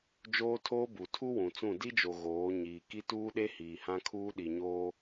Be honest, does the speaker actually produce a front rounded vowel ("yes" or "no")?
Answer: no